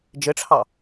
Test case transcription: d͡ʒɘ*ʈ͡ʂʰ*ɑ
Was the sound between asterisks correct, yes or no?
yes